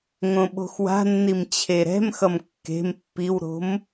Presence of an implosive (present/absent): present